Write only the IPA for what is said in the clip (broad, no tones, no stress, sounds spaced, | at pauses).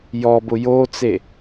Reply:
j ɔ b ʊ j o t͡s e